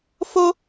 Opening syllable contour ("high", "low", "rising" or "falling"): high